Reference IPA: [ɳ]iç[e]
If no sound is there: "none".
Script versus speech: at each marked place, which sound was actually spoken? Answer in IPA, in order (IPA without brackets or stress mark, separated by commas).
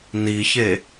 n, e